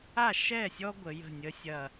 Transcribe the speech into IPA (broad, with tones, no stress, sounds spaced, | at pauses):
a˥˨ ʃ ɛ˥˨ sʲ ɔ˥ ɡʷ ə˩˧ j ə̤˥˨ nʲ ə˧˥˧ sʲ ɐ˥˨